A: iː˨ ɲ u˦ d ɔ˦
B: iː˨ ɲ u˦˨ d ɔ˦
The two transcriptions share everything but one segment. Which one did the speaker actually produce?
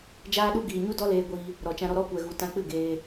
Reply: A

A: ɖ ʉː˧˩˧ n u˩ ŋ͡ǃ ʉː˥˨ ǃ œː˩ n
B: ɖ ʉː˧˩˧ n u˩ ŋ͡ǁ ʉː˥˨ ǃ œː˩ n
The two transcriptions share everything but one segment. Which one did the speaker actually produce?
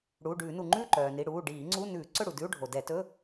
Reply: A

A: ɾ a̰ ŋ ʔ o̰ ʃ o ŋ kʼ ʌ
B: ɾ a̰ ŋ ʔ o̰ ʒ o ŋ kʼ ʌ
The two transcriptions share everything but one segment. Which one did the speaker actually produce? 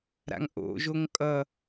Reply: B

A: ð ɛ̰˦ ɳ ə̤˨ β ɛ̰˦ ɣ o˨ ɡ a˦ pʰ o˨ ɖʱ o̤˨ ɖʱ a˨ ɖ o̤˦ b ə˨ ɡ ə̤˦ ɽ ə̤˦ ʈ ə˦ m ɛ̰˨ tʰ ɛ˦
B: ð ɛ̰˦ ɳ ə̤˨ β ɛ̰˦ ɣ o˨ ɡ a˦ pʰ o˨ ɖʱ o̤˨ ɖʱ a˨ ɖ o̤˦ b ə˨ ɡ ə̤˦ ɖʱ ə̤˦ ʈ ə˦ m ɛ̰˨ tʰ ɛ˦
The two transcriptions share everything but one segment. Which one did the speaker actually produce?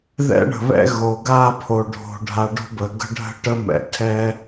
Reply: B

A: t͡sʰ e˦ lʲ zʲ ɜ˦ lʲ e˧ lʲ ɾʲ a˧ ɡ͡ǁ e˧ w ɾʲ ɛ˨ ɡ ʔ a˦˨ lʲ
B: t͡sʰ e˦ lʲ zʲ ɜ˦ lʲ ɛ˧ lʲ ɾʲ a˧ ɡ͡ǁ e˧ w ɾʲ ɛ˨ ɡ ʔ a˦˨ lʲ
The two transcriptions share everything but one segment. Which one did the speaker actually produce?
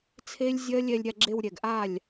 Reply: B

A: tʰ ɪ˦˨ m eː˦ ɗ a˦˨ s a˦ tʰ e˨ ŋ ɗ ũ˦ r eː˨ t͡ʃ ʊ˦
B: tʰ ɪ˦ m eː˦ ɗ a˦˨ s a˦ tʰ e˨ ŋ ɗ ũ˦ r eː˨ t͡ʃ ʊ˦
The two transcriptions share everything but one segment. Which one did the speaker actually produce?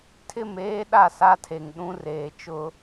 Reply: A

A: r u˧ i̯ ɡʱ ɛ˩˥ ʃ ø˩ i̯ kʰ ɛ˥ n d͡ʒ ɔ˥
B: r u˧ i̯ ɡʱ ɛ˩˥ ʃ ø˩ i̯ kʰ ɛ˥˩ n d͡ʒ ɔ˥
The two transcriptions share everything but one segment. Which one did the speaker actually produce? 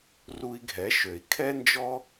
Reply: A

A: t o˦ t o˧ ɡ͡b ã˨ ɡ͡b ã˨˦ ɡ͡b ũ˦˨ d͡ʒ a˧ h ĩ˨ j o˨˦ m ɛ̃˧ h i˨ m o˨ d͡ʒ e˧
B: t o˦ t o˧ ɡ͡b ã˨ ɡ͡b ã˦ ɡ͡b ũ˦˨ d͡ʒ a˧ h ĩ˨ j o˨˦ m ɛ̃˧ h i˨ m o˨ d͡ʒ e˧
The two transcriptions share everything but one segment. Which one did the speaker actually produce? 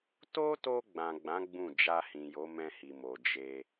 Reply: A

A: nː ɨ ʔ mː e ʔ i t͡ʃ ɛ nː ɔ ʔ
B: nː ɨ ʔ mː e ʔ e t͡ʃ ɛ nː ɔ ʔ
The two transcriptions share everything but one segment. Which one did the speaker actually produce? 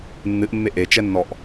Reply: B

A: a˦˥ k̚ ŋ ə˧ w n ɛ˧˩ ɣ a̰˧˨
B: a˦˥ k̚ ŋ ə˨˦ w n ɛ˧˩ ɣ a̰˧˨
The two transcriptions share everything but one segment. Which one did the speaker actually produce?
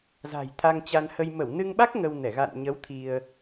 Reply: A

